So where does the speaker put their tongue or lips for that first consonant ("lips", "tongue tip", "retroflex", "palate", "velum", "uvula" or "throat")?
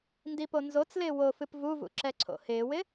tongue tip